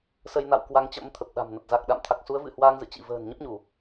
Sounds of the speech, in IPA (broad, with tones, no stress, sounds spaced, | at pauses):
s ə˧ j n a̰˧˨ w k w a˨˦ ŋ t͡ɕ ə̰˧˥ m t̪ʰ ə˨˩ p̚ ɗ a̤˨˩ m n ə˨˩ t̚ z a˨˩ k̚ ɗ a̰˧˨ m t̪ʰ a˨˩ k̚ s u˨˦ ə̯ v ɨ̰˧˨ h w aː˧ ŋ z ɨ̰˧˨ t͡ɕ ḭ˧˨ v ə̤ː˨˩ n ɲ ə˦˥ p̚ ɲ u˧˩˨